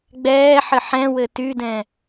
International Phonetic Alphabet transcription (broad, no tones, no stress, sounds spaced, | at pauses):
ɡ͡b ɛː ħ ɘ ħ ɛ̃ w ɘ t y d ɛ̃